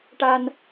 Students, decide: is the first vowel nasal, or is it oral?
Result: oral